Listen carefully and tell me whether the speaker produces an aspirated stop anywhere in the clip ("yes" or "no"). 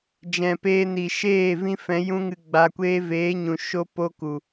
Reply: no